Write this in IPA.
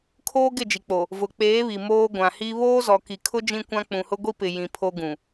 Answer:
kʰ oː˦ ɡ ɪ˦˨ d͡ʒ i˨ k͡p o˨ | v ʊ˨ k͡p eː˨˦ β i˨ m oː˦ ɡʷ ã˨ h i˦ β oː˦ z ɔ˨ k i˨ kʰ ʊ˦ d͡ʒ ĩ˦ kʷ ã˦ k͡p ũ˨ h ʊ˦ ɡʷ i˦ p ɪ˨ j ĩ˨ pʰ o˦ ɡ ũ˨

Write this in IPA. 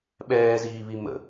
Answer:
ɓ ɛː z iː β i m ə̰

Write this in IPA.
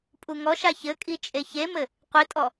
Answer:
pʼ u ŋ ɔ ʃ a ç ɘ kʼ i t͡ʃʼ e ç e m ɘ | qʷ i tʼ ɔ

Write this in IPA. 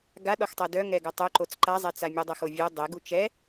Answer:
ɡ a ɗ ɔ x tˤ ɛ d œ ŋ ɛ ɡ œ tˤ ø ǃ o t͡s ǃ a zˤ ɛ t͡s a mʲ œ dˤ ə x o vʲ ø dˤ e ɡ u t͡ʃ ɛ

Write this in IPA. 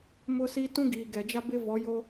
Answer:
m ʊ˦ s i˦ t ũ˦ ɡ iː˨ ɡ ɛ˨ d͡ʒ a˦ b ɪ˦ v ɔ˨˦ j o˦

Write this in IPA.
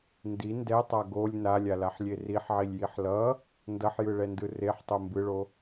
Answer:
n d i n d ɛ tˤ a ɡ o lʲ n a lʲ a l a ħ lʲ e r i ħ ʕ i lʲ j i ħ l ʌ | n d ʌ ħ j ɯ ɭ ɛ n d ɯ r e ħ tˤ o m b ɯ ɭ o

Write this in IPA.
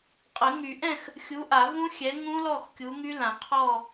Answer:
qʼ ə˨˩˦ ŋ y˨˩˦ ʔ ɛ̃˥˨ x | xʲ u˨˥ ʔ a˨˩˦ v ũ˦˥ xʲ ɛ˨˥ ŋ ũ˦˥ l ɔ˥˨ x kʲ u˨˥ ŋ y˦˥ l ã˨˩˦ qʰ ɔ˥˨

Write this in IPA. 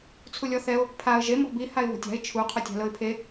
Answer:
t͡sʰ u lʲ ɔ θ ɛ ʊ̯ | pʰ a ə̯ ʒ e m ɔ̤ b i h a ɪ̯ β o̤ tʲ a̤ ɪ̯ t͡ʃʰ u qʰ o tʲ a̤ l ɤ ɪ̯ pʰ e

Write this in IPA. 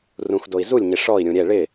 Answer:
r ũ x d o i̯ z u lʲ ɲ ɪ ʂ ɔ i̯ ɾʲ ũ ɾʲ ɛ ɭ ɪ

